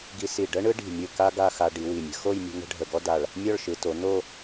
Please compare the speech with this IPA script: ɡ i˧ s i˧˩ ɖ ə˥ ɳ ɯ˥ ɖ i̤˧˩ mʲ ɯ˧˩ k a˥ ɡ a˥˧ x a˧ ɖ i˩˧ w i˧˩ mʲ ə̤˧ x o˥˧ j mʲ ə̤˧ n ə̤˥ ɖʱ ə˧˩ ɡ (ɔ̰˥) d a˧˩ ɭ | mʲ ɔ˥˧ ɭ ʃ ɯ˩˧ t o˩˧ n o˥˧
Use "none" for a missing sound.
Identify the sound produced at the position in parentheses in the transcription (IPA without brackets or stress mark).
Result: ɔ˥